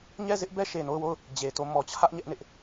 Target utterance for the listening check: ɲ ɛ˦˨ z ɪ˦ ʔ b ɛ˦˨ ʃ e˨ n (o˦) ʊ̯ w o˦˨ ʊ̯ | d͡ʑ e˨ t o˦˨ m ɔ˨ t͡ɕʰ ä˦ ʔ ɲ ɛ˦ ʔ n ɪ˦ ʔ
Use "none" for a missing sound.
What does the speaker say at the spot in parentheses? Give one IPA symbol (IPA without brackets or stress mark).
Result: o˦˨